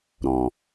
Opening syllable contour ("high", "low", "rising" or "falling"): low